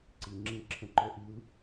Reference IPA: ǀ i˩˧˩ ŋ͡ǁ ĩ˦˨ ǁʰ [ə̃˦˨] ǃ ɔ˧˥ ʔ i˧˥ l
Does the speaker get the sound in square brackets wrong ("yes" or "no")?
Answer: no